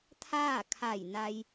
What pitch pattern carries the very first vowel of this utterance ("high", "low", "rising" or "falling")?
falling